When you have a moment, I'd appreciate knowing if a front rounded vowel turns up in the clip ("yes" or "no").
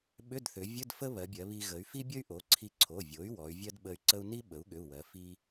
yes